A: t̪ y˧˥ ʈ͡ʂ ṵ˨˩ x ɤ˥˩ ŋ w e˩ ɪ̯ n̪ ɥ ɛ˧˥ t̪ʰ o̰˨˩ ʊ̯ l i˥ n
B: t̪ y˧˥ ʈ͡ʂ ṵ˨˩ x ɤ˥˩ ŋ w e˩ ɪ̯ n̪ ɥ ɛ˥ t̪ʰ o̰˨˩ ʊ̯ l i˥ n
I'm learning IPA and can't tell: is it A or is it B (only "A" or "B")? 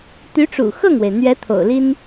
A